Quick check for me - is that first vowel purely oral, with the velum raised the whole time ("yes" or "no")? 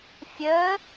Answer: yes